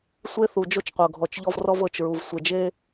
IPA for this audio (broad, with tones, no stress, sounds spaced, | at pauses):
sʷ e˦ θ u˨ d͡ʒ o˦ t͡ʃ qʷ ɤ˨ ɡʱ ɔ˨ t͡ʃ ʎ ɔ˦ v r ɔ˦ v ɤ˨ t͡ʃ ɹ u˨ v sʷ e˨ d͡ʒ e˦